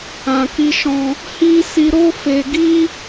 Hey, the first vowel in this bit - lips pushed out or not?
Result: no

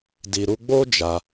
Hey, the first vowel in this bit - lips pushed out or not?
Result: no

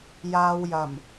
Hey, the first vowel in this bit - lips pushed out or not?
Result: no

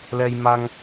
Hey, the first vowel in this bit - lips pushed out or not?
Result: no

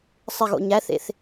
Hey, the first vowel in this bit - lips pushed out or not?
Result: no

